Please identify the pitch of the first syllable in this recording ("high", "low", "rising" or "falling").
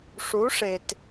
rising